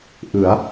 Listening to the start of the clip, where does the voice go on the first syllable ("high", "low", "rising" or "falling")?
rising